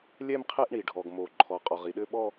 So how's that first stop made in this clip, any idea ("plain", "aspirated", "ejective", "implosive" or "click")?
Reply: aspirated